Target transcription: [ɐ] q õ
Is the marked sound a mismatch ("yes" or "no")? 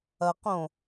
no